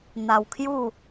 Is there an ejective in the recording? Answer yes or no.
no